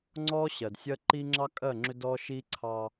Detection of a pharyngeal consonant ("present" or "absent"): absent